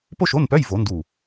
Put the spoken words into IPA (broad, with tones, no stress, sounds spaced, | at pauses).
p o˥ ʃ o˧˥˧ n p œ˧˥˧ j v o˨˩˦ n d u˧˩